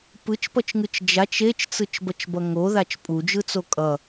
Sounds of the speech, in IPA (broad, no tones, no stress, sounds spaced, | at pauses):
p ɯ t͡ʃ p ʌ t͡ʃ ŋ ɯ t͡ʃ d͡ʒ a t͡ʃ e t͡ʃ t͡s ɯ t͡ʃ b ʌ t͡ʃ b ʌ ŋ o ð a t͡ʃ pʼ u d͡ʒ ɯ t͡s o kʼ ʌ